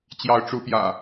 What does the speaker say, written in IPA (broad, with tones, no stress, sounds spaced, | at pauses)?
t͡ɕ j ɑ˨˦ ʊ̯ ʈ͡ʂ u˨˦ p j ä̰˨˩